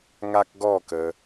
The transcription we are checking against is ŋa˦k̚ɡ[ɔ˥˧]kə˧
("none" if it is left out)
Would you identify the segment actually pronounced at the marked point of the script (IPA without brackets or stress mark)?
ɔ˥˧